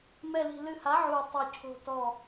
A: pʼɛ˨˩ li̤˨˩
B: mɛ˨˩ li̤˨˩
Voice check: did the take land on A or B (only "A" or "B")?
B